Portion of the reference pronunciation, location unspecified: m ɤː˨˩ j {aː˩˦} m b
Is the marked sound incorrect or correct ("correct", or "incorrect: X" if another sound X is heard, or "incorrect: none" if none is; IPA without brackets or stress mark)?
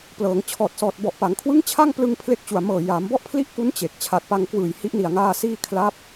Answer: correct